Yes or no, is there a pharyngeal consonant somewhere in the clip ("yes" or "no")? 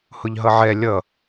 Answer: yes